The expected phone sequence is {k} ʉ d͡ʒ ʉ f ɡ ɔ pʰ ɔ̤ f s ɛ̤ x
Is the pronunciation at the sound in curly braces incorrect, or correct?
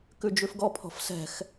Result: correct